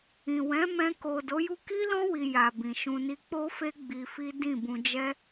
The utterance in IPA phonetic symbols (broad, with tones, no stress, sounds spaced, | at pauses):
ĩ˨ w ɛ̃˨˦ m ɛ̃˧ k o˨ d o˨˦ j u˦ k i˦ l ɔ̃˦ w i˧ j a˨ b ĩ˨ ʃ ũ˧ n i˧ k͡p o˦ f e˦ ɡ͡b i˧ f i˦ d ĩ˦˨ b ũ˧ d͡ʒ ɛ˦